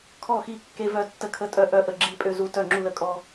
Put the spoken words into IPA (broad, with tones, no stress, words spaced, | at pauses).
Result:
kʰɔ˥˩xi˥˩ kːe˦vœ˦ tːə˦kʰə˦tʼœ˦ ʔœ˥˩ ʔə˥˩ɡ͡ǁi˦ pʼø˦zu˦ tœ˥˩ŋ͡ǁu˥˩lə˦kʼɔ˦